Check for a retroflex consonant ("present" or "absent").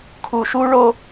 present